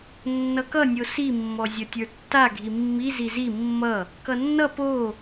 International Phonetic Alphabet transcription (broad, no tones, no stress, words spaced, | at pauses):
nːʌkʌ nʲosi mːɔzʲʌtʲə˞tːa ɡʱimːi zizi mːʌ | kʌnːʌ po